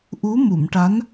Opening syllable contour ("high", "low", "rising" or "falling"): rising